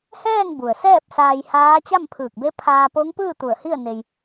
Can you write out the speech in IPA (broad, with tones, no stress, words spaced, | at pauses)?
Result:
hɛː˥˨ŋbu˩ə̯sɛː˥˨p̚ saː˧jhaː˧˥ t͡ɕa˥˨mpʰɯː˧˩k̚be˧˥ pʰaː˧po˧˥ŋpɯː˥˨ t̪u˧˩ə̯hi˥˨ə̯ ne˧j